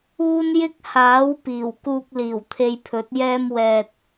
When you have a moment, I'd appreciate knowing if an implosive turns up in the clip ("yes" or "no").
no